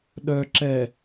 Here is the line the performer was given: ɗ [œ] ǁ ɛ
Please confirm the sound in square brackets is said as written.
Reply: yes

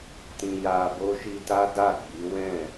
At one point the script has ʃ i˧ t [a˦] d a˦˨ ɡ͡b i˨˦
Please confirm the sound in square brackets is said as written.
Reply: yes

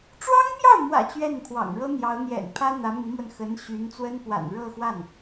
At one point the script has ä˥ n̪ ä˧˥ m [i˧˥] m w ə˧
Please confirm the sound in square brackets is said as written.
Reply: yes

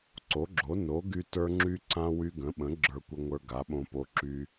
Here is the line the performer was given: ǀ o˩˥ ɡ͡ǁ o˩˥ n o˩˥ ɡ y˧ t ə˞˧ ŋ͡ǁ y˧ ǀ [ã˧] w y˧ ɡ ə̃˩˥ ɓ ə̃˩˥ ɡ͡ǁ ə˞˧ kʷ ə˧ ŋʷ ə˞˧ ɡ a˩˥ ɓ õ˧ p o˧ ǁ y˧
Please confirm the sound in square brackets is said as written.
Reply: yes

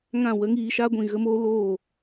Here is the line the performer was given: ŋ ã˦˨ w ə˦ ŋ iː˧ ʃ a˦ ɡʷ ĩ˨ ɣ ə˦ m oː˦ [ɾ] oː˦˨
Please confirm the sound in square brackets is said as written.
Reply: no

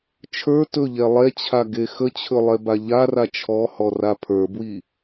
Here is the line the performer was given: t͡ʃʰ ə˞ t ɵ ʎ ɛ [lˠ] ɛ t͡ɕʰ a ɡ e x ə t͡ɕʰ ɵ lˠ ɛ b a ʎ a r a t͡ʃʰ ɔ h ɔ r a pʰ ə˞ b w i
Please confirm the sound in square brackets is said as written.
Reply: yes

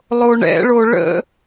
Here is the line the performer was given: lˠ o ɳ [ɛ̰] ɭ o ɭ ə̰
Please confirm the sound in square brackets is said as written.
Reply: yes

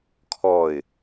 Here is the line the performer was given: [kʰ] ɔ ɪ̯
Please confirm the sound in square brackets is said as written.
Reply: yes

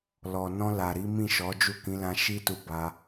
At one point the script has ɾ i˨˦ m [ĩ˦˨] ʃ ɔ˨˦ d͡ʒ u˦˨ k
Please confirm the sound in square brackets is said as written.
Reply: yes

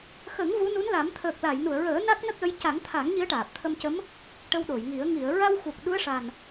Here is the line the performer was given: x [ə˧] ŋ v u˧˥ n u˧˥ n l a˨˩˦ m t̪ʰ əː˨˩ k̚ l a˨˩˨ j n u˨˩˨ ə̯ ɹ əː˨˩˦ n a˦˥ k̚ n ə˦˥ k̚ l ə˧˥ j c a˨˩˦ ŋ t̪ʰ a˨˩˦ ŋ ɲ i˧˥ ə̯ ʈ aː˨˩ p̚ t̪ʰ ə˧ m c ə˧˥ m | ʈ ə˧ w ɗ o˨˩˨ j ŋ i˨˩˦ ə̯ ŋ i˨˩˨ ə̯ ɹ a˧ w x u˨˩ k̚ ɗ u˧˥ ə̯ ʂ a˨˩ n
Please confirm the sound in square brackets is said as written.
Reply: no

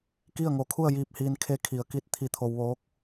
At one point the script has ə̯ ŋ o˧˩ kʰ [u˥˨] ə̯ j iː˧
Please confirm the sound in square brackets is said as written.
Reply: yes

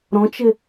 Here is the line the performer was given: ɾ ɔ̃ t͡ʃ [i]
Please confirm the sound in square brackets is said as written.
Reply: no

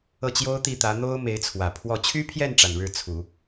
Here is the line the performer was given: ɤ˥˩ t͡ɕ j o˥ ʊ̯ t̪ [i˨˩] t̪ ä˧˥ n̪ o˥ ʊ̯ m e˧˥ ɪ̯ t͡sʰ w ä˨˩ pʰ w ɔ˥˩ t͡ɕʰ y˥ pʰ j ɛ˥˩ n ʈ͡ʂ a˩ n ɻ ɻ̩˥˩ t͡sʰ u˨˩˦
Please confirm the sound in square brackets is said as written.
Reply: no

